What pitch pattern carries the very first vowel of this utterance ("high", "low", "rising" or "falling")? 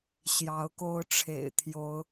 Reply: rising